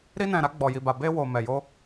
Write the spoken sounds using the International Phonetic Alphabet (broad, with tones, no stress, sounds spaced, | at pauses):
ɾ i˧ n ɛ̃˨ ɾ a˧ ɡ͡b ɔ˨ j i˨ b a˨ b e˧ w o˨ m ɛ˨ j o˧